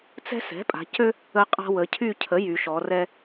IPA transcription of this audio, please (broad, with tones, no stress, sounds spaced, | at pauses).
t͡s ɛ̤˦ s ɛ̤˩˥ pʼ a̤˩˧ c ø˦ | ə˦ qʼ a̤˦ w ə˩˧ cʰ y˦˨ cʰ ə˩˥ j y˩˧ ʃ ɔ˩˧ r ɛ˦